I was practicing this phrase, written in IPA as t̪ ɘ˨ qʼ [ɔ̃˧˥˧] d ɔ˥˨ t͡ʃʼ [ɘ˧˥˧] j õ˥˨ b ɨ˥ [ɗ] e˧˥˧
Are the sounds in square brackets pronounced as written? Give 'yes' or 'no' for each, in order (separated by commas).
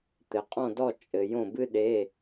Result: no, no, yes